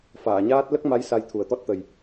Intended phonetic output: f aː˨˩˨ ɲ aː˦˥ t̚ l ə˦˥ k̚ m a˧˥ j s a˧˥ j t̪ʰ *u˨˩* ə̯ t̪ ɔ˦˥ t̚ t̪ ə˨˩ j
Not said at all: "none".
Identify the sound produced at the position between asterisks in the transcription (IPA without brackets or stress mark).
u˨˩